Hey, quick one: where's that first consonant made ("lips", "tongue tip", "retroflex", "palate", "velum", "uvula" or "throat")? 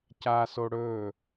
palate